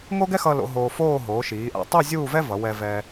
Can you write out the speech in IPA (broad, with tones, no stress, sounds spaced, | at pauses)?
ŋ o˥ ɡ ɛ˥ x ʌ˧ l o̰˩˧ ɦ oː˧ f oː˥˧ ɦ oː˩˧ ʃ iː˩˧ ʔ a̰˧˩ tˤ u˥˧ zʲ uː˥˧ v ɛ˥ v ʌ˩˧ w ɛ˧ v ɛː˧